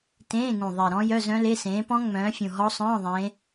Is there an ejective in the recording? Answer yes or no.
no